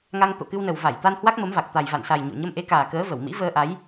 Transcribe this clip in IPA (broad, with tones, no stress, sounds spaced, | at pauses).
ŋ a˧ ŋ t̪ o̰˧˨ k ɨ˧ w n ə˨˩ w v a˧˩ j t̪ a˧ n h w a˦˥ k̚ m ə˨˦ m v a˨˩ k̚ t̪ a˨˩ j v a̰˧˨ n s a˨˩ j ɲ o̰˧˨ ɲ ə˧ m ʔ e˨˦ k aː˨˩ k əː˨˦ v ə˧˩ w m ḭ˧˥ v əː˧ ʔ a˨˦ j